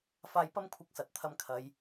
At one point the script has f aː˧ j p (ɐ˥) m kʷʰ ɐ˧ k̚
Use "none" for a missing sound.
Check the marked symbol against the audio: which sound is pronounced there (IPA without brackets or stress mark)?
ɐ˥